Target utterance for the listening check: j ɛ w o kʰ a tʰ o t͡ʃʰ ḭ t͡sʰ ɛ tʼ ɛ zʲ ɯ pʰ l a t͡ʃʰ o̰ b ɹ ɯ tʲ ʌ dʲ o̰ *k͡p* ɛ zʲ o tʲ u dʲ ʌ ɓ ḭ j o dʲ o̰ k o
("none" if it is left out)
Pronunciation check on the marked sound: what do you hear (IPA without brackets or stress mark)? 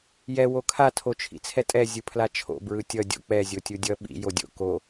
k͡p